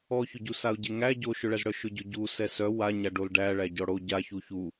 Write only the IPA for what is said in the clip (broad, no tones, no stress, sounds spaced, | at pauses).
ɔ ç ʊ ɟ u s a ʊ̯ ɟ e ŋ æ ɟ o ʃ ʊ ɭ ɛ z ɽ œ ʃ ʊ ɟ ʊ ɟ u s ɛ s œ w a ɲ a ɖ o l ɖ æ ɭ æ ɟ ɔ ɽ o ɟ a ç u ç u